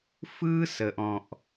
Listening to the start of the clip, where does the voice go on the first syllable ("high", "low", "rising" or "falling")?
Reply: high